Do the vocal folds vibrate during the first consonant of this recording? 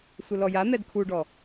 no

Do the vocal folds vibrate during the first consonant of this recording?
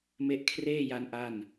yes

